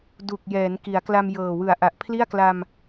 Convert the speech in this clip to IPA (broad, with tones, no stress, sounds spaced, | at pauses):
d u˨˩ k̚ j ɛː˩˦ n k i˩˦ a̯ k l a˧ m j ɤː˨˩ w ɯ˨˩ a̯ ʔ a˨˩ ʔ pʰ l i˥˩ a̯ k l a˧ m